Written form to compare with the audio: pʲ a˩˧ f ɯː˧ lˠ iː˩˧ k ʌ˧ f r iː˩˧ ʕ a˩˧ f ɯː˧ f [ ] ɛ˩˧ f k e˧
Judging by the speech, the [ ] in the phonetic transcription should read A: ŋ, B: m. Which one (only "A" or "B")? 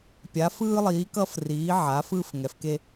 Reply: A